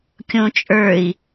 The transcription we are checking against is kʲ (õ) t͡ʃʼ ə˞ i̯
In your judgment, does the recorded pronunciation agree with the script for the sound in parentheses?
yes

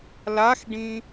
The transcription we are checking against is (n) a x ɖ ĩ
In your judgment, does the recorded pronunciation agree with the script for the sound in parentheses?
no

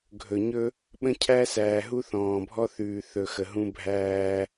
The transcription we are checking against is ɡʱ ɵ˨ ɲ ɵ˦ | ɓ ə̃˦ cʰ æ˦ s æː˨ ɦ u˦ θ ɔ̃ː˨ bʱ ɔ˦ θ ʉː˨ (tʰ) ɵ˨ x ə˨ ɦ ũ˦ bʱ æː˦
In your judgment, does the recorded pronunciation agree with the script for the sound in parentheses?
no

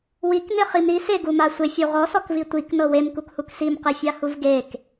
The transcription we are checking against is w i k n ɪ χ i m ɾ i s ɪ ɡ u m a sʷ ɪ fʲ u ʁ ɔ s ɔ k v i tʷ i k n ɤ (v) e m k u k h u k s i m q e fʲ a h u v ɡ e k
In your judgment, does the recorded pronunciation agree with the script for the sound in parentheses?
no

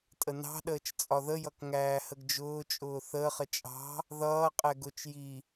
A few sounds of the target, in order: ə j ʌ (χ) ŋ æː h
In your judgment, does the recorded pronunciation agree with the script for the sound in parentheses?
no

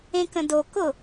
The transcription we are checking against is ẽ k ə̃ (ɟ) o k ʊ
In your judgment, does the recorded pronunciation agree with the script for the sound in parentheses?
no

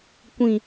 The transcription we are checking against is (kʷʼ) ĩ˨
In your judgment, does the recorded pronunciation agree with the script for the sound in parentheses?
no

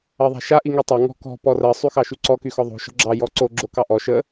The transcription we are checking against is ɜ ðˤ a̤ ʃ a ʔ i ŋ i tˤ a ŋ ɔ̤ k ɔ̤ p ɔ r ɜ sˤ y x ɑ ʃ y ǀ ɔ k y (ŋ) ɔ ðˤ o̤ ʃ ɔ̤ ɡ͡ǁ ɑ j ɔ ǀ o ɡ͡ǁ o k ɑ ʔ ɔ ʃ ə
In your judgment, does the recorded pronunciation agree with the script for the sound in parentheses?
no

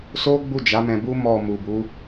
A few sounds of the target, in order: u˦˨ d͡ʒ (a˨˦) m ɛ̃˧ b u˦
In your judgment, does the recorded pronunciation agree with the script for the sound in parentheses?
yes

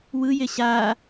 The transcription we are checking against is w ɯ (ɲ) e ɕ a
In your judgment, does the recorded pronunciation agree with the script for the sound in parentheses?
no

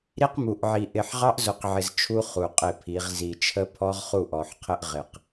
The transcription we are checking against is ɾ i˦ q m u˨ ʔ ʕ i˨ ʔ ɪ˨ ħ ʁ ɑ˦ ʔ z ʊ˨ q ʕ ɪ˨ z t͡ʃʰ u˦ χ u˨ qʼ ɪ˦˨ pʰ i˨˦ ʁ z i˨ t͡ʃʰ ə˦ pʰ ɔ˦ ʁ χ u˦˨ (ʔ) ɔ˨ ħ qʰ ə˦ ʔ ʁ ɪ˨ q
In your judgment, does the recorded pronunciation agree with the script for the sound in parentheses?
yes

